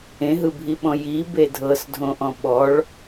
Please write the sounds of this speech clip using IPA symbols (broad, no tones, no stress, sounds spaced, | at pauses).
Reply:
ẽ ɦ ɯ bʱ i ɓ ɔ̃ j i b e dʱ ɤ s dʱ õ ʔ ɔ̃ ɓ ɔ ɭ